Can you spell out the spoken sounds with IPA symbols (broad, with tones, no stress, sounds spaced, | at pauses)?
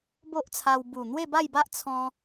b o˦ ʔ t͡sʰ a˧ w b u˨˩ n̪ w e˥˧ b a˥˧ j b a˦ ʔ t͡sʰ ɔ̃˧